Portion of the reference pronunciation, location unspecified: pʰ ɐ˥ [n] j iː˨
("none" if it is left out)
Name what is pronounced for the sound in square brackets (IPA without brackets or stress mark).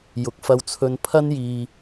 n